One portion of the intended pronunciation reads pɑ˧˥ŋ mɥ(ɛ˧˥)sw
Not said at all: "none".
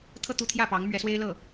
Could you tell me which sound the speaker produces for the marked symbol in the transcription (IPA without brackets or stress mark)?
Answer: ɛ˧˥